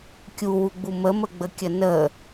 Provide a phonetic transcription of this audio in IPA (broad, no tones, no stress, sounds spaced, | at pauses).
kʲ u w u ɡ͡b u m ə m ə ɡ͡b ə kʲ ə n ə